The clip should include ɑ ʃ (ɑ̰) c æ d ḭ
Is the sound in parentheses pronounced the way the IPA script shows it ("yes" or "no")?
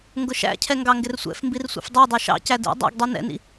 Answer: yes